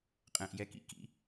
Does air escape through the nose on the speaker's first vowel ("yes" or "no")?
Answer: yes